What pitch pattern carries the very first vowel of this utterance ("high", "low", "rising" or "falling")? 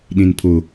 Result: low